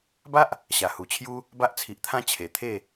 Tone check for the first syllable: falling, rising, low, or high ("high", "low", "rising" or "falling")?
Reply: high